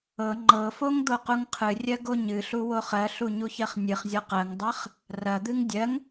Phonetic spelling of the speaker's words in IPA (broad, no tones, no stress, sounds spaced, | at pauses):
ɤ ŋ͡ǃ ɤ f o ŋ d̪ o q u ŋ qʰ ɨ rʲ ɜ ɡ o ɲ ɨ ɬ u w o χ ɜ ɬ u ɲ u ç ɜ χ nʲ ɨ χ zʲ ɔ q ɜ ŋ dˤ ɜ χ | r ɐ d̪ ɨ ŋ dʲ ɜ ŋ